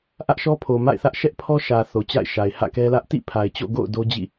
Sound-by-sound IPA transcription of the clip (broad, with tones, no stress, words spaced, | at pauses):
ʔä˦ʔʃɔ˦ pʰo˨ma̰˦˨ɪ̯θä˦ʔ ʃɛ˦ʔpʰɔ˦ʃä˨ θo˨t͡ɕa̰˦˨ɪ̯ʃa˨ɪ̯ hä̰˦˨kɛ˦lä˦ʔ tḭ˦˨ pʰa˨ɪ̯t͡ɕo̰˦˨ ɡo̰˦˨ʊ̯ do˦d͡ʑḭ˦˨